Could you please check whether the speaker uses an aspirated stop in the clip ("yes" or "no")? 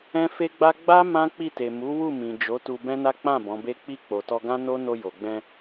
no